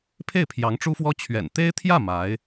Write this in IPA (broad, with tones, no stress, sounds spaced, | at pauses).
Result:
pʰ e˥˩ ɪ̯ pʰ j ɑ˧˥ ŋ ʈ͡ʂ u˥ f w ɔ˥ t͡ɕʰ ɥ ɛ̰˨˩ n t̪ e˥ ɪ̯ t̪ʰ j ä˥˩ m a˧˥ ɪ̯